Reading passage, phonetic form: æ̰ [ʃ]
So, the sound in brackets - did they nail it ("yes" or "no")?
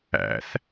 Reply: no